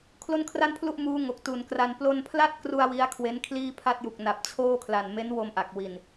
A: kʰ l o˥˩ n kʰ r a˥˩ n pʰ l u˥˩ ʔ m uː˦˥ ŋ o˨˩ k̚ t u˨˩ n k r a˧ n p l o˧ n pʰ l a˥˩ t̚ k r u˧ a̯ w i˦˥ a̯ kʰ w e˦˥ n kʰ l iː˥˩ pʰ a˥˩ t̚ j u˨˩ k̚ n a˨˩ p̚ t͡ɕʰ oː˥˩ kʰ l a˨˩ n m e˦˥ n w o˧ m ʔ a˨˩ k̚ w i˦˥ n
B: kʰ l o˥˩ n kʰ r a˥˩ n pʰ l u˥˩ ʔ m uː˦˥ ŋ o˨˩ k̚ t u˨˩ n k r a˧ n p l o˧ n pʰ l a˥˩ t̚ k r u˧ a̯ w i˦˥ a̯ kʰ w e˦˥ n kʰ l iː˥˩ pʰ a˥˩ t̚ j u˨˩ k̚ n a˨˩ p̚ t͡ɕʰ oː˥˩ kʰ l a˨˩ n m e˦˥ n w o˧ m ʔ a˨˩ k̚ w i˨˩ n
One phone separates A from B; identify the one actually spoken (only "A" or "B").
B